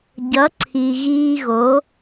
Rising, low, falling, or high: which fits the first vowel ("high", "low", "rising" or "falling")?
rising